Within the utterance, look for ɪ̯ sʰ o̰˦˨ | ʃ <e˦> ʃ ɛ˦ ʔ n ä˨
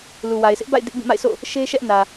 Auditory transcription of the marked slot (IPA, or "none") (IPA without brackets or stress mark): e˦